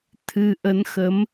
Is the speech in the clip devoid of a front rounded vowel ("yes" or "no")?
yes